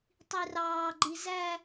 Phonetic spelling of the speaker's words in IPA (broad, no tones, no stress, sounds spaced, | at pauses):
tˤ i r ɑː ɡ͡ǃ i z æ